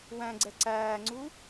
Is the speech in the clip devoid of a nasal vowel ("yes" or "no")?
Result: no